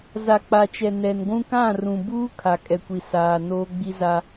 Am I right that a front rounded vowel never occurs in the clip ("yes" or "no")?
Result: yes